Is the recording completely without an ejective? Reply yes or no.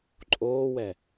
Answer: no